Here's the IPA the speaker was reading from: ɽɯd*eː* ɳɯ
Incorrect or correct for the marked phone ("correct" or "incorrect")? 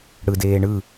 correct